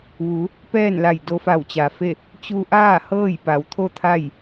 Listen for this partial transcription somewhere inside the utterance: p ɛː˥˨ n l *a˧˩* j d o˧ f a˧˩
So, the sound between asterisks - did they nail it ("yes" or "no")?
yes